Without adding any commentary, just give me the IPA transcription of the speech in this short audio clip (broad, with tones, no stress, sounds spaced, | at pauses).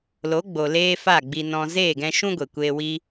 l o˨˦ ɡ͡b o˨ l eː˦ f a˦˨ ɡ͡b i˧ n ɔ̃˧ z eː˦˨ ɡ ɛ̃˧ ʃ ũ˦ ɡʷ e˨ kʷ eː˧ w i˦